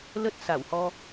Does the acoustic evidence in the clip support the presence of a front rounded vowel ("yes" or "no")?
no